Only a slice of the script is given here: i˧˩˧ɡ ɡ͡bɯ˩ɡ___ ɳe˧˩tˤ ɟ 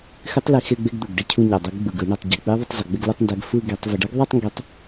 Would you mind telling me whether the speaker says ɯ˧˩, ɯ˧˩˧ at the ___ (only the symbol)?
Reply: ɯ˧˩˧